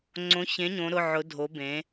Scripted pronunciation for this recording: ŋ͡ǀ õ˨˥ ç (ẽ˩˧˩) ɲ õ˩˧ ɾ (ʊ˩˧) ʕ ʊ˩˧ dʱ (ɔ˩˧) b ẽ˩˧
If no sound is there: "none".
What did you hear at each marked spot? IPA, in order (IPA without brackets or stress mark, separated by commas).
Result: ẽ˨˥, ʊ˩˧˩, o˩˧